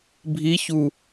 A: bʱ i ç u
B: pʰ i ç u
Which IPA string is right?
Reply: A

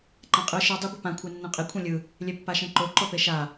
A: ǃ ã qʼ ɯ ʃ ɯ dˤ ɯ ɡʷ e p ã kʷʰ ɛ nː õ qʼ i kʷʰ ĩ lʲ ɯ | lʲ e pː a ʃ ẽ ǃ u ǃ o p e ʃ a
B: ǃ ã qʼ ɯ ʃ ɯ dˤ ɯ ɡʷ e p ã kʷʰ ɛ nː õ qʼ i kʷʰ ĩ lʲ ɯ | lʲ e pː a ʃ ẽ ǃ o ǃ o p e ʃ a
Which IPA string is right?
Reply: B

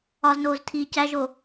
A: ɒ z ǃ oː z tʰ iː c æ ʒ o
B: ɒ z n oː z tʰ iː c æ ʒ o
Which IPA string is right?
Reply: B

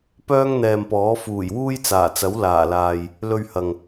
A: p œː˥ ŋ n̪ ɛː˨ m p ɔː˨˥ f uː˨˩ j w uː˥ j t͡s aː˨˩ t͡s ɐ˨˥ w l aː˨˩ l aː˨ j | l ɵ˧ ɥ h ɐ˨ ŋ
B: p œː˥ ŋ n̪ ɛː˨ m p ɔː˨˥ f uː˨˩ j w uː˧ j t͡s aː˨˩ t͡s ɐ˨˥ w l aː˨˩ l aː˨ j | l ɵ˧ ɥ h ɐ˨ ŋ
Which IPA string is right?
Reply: A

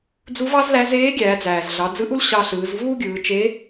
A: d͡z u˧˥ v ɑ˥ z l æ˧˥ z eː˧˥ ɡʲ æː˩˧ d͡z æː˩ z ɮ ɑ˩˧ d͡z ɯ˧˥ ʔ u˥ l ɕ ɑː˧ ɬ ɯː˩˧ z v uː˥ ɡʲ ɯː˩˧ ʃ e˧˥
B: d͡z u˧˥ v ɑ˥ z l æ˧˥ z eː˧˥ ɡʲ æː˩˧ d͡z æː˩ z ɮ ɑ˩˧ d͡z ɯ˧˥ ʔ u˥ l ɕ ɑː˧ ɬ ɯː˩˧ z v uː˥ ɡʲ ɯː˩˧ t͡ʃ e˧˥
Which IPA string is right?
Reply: B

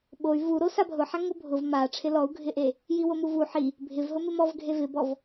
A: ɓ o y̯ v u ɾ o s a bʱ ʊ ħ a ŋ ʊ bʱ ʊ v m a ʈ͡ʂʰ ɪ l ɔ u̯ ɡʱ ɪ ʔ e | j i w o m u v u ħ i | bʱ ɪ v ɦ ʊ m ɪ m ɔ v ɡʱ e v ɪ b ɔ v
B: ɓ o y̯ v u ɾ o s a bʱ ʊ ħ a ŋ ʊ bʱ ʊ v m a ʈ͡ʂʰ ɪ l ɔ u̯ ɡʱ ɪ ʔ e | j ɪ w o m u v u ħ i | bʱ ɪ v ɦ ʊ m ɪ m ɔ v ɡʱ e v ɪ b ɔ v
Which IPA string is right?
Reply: A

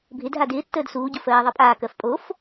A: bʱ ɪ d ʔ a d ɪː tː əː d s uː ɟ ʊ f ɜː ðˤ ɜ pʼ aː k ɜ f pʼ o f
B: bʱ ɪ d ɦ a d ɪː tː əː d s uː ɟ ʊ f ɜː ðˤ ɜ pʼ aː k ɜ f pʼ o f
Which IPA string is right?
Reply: B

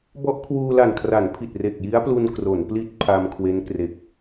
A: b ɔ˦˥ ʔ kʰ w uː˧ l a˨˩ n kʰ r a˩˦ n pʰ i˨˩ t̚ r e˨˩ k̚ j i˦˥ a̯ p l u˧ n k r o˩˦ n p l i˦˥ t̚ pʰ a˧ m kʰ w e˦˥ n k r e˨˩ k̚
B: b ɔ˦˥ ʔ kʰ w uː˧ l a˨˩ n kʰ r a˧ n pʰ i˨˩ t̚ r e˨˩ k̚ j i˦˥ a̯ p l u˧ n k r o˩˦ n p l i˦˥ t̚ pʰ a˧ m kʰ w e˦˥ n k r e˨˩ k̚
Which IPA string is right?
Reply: A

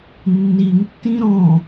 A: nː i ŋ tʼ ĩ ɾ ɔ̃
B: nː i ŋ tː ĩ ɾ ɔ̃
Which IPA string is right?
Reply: B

